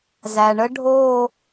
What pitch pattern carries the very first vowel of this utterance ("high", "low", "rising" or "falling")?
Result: low